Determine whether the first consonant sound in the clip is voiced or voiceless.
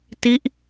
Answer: voiceless